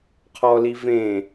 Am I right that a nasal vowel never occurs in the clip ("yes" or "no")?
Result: no